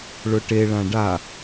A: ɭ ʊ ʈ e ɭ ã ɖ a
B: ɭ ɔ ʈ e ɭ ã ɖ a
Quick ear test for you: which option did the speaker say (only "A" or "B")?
A